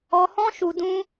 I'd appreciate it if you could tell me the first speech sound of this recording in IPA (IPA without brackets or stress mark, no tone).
ɔ